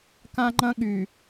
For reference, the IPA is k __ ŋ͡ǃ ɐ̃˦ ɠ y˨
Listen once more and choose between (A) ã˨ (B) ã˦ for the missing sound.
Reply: B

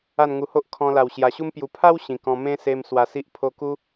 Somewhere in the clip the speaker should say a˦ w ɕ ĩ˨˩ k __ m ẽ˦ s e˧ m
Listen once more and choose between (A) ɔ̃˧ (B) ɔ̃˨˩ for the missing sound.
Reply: A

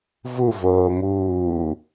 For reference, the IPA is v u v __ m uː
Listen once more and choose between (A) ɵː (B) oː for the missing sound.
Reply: B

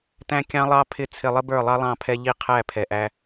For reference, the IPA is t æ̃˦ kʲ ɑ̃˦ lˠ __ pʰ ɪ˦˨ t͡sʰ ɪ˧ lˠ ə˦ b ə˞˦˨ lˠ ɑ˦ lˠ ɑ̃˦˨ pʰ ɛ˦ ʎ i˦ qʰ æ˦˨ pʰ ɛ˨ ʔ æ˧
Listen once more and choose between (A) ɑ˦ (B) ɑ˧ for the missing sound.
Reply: A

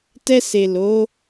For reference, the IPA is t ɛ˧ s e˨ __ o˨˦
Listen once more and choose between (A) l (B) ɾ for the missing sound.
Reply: A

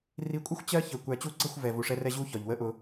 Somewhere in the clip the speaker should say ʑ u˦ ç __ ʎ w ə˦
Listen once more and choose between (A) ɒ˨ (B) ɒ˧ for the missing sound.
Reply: A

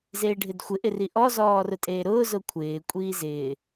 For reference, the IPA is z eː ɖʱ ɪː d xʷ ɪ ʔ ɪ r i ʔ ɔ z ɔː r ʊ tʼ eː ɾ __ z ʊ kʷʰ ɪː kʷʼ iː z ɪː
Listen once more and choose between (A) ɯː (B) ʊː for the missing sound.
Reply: B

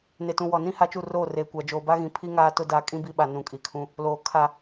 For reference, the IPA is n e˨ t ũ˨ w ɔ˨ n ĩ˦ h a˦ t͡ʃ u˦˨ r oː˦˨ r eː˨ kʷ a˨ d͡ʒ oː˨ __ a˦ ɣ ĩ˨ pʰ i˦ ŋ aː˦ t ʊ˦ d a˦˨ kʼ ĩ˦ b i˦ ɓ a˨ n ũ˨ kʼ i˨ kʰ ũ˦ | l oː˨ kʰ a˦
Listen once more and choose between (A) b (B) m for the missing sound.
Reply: A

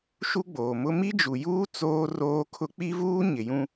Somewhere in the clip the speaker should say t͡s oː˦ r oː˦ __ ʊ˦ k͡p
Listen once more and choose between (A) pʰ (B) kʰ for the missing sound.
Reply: B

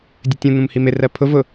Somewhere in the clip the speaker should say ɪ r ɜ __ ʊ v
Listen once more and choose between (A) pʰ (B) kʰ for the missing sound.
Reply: A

